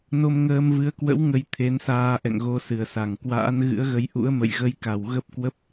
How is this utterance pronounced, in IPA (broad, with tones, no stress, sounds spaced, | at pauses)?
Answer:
n o˧ m ŋ əː˧ m v ɨ˨˦ ə̯ k w ə̰˧˥ w ŋ ə˧ j t̪ʰ e˨˦ n s aː˧ ʔ ɛ̰˧˨ ŋ ɣ o˨˦ s ɨ˨˩ ə̯ s a˧˩ ŋ k w a̰ː˧˥ n ɣ ɨ̰˧˥ ə̯ ɣ ə˨˦ j ʔ ṵ˧˥ ə̯ m ə̰˧˨ j ɣ ə˧ j k a˨˩ w ɣ ə˦˥ p̚ k w ə˦˥ p̚